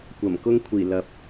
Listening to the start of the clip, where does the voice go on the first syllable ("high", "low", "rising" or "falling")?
low